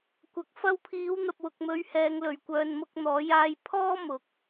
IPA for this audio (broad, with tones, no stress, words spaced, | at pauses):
kʷɐ˨˥k̚ fɐ˧wpʰiː˨˧wn̪ɐ˨p̚ wʊ˨k̚mɵ˧ɥ hɛː˧ŋlɵ˨ɥkʷœː˧n mʊ˧k̚n̪ɔː˨˧jaː˧jpʰɔː˥ mʊ˨˥k̚